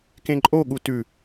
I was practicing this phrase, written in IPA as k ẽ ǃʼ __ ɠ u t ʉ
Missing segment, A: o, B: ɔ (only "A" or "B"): A